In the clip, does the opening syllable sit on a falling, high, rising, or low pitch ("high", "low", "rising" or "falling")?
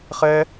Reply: high